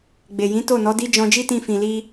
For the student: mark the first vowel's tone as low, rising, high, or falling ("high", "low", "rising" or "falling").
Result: low